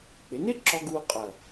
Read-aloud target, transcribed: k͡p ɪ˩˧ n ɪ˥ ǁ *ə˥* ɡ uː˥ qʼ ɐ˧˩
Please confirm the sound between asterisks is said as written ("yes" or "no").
no